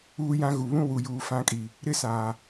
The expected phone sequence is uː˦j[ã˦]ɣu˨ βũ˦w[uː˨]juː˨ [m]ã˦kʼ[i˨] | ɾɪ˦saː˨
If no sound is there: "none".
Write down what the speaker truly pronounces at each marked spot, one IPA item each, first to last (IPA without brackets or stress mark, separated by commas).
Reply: ã˦, u˨, f, i˨